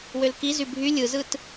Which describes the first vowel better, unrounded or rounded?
rounded